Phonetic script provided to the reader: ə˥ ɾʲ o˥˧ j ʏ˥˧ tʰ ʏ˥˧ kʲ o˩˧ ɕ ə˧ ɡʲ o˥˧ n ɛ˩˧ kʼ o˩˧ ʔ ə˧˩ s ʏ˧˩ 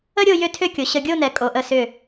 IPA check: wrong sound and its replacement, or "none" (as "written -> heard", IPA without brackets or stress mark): none